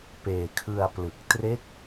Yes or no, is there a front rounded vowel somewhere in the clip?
no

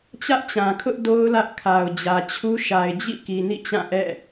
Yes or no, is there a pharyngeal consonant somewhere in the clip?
no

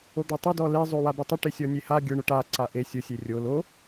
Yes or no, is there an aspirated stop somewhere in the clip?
no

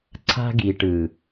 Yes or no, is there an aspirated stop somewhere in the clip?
yes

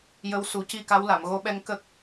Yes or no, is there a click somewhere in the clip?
no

